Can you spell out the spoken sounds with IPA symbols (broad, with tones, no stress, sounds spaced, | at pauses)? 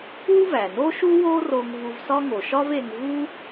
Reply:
u˥ v æ˩ n o˥ ʃ u˥ w o˥ r o˧ ŋ v u˧ v s ɒ˥ ŋ o˩ ʃ ɒ˥ v e˧ ŋ v u˥